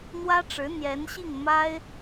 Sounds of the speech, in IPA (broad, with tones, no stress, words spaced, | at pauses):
n̪wä˥ʈ͡ʂɻ̩˧˥ n̪jɛ˧˥nɕi˥˩ŋ ma˥ɪ̯